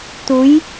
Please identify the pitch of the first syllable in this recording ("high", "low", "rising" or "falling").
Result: rising